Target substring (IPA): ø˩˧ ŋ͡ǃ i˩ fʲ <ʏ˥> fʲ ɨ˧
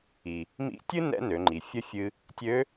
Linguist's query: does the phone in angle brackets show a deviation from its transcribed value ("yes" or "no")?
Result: yes